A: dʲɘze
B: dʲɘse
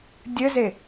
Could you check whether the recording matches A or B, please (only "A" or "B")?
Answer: A